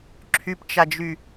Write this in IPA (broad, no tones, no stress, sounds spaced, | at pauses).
ǁʰ y p t͡ʃ a d͡ʒ y